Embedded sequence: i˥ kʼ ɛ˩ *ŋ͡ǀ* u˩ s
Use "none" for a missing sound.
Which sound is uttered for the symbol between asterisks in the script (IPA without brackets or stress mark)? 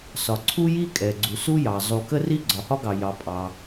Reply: ɡ͡ǀ